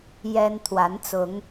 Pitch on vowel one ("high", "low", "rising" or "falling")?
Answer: high